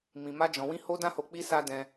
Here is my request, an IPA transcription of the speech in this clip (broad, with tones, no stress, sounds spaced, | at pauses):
m ĩ˧ m a˦ d͡ʒ ɔ̃˧ w ĩ˦ h o˦ d ã˦ h o˧ k͡p i˧ s a˧ d ɛ̃˦